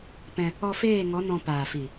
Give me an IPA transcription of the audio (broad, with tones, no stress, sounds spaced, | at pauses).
p ɛ̃˧ | ɔ˧ f eː˦˨ ŋ ɔ˨˦ n ɔ̃˧ p aː˨ f i˨